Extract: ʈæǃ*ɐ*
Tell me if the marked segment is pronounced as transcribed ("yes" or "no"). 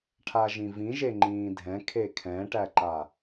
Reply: no